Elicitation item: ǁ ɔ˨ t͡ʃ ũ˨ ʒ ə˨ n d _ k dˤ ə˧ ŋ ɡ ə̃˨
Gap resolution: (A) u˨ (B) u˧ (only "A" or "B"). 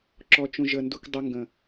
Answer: B